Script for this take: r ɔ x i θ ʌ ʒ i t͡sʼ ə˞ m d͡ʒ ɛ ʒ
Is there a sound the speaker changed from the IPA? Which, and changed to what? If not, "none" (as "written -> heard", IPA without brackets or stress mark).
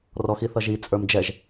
none